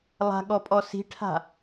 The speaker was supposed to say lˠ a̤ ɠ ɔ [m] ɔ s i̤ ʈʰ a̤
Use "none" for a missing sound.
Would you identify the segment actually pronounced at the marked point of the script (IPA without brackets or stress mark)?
pʼ